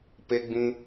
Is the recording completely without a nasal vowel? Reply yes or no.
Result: no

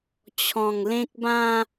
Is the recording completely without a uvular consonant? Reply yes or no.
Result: yes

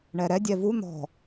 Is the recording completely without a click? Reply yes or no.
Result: yes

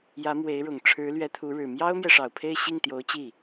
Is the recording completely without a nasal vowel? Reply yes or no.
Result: yes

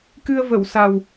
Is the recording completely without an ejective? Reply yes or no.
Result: yes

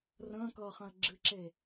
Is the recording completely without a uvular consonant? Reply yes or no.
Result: no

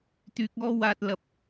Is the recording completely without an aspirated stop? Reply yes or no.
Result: yes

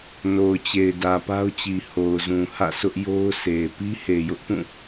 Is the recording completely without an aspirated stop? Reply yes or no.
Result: yes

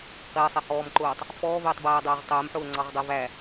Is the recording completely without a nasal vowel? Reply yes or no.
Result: yes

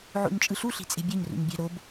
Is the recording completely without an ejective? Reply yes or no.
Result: no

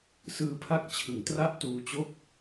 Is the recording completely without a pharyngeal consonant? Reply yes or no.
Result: yes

